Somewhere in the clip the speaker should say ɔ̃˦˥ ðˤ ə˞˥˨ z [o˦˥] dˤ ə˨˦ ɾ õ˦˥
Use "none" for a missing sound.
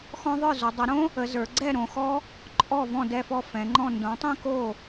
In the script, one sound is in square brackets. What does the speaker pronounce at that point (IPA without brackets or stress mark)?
o˨˦